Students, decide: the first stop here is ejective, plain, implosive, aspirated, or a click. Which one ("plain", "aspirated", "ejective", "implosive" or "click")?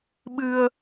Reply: implosive